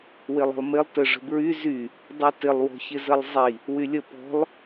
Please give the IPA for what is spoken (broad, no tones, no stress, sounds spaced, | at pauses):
w ɪ lˠ ə̤ lˠ m ɪ lˠ t ə ʐ ə̤ b ɹ y z y | dˤ y t ɪ lˠ w ɔ̤ ç ɪ z ə lˠ zˤ i | w y lʲ ə p ɔ̤ lˠ